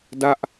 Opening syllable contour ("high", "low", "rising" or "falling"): falling